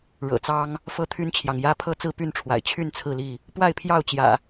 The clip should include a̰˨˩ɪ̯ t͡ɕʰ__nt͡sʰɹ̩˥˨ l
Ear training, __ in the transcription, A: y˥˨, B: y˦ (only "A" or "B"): A